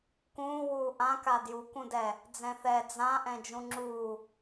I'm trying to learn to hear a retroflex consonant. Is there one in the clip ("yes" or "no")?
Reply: no